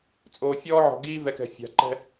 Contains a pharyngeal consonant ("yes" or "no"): yes